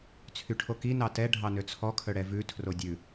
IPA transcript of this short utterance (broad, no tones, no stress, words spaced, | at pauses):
t͡sʰyʈʰoki nɑtɛ ɖʱɑnøt͡sʰɔ kʰœɽɛvʉ tʰrodʲʉ